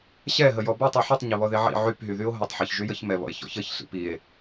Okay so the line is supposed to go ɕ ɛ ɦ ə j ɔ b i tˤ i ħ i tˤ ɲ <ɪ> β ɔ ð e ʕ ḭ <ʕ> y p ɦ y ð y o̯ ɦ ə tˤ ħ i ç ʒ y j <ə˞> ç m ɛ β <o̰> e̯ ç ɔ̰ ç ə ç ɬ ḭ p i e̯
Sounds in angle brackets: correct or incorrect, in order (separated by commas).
correct, correct, incorrect, incorrect